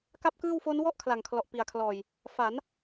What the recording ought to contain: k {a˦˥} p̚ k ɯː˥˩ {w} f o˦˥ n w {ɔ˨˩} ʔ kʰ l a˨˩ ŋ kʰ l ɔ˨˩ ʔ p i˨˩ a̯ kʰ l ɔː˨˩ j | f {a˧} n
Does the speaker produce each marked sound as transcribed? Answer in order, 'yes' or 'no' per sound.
no, yes, no, no

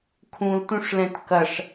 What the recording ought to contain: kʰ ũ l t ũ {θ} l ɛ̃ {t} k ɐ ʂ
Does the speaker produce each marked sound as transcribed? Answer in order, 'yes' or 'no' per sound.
no, yes

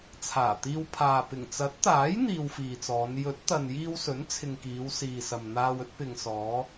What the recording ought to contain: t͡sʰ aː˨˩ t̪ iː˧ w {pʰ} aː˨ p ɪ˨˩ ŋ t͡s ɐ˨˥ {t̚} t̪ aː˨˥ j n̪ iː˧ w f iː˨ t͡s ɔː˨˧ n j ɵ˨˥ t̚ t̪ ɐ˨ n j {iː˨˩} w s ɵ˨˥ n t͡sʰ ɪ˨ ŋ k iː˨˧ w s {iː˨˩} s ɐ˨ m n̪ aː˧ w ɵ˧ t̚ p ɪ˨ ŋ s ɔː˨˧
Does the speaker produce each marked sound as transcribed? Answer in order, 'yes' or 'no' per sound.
yes, yes, no, no

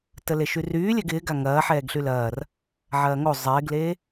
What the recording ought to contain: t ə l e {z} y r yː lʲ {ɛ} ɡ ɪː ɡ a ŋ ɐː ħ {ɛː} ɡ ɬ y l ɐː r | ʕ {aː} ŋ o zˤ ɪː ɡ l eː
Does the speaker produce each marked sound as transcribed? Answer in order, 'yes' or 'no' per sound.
no, yes, yes, no

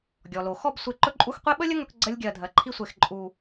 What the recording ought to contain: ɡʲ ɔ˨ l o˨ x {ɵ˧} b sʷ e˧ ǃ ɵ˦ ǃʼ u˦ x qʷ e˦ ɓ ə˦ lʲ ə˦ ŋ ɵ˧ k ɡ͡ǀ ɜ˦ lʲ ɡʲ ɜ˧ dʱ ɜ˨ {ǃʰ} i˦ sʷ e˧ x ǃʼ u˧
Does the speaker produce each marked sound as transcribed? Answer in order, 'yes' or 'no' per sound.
no, yes

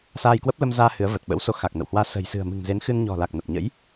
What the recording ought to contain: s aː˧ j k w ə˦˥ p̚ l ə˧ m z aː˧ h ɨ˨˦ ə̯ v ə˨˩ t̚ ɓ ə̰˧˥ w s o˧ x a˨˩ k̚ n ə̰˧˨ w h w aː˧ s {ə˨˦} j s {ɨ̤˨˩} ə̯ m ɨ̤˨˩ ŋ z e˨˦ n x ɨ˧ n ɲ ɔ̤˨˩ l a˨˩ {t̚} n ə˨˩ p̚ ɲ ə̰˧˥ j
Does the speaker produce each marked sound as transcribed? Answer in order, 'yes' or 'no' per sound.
no, yes, no

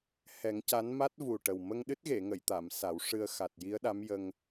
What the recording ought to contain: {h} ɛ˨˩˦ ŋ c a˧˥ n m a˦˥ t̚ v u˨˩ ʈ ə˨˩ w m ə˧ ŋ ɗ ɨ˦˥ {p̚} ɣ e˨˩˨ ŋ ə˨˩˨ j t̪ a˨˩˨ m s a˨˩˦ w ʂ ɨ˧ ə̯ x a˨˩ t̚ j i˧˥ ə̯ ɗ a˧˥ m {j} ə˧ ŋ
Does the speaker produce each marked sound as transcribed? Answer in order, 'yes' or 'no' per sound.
yes, no, yes

